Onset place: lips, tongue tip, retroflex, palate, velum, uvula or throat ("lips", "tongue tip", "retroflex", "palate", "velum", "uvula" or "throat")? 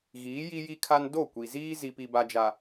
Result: velum